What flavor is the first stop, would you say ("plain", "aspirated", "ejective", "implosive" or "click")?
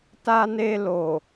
plain